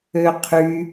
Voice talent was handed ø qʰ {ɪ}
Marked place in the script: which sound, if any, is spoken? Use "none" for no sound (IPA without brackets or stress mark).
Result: y